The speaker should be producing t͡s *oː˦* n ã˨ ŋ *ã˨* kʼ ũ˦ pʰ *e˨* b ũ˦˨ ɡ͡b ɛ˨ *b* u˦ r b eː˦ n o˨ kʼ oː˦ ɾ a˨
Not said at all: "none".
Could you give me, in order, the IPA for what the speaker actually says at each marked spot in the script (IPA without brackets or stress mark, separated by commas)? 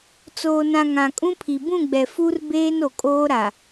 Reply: oː˨, ã˨, i˨, f